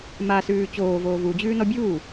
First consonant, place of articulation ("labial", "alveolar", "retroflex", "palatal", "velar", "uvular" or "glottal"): labial